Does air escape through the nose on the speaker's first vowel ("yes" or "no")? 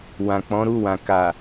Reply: yes